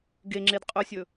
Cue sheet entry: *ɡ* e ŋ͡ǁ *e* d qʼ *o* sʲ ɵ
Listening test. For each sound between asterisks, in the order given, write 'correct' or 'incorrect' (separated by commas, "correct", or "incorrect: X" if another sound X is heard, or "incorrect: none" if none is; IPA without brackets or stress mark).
correct, correct, incorrect: ɵ